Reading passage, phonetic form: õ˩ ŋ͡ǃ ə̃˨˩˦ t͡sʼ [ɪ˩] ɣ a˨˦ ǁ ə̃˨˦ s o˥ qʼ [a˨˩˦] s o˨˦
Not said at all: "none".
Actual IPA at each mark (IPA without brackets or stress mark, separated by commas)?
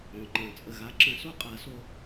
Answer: ə˩, a˨˩˦